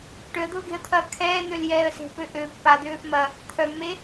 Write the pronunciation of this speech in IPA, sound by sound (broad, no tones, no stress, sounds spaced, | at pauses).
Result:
ʈ ø ə̯ d̪ ʊː ɡ e̤ ə̯ t̪ʰ ɐː kʰ ɛː n̪ ø l j ɛː ə̯ s e̤ p ø ʔ ø pː a d̪ øː f m ɐ | t̪ʰ œ mː e